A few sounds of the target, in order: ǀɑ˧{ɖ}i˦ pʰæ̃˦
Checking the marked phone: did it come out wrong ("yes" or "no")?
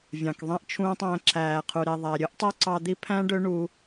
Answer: yes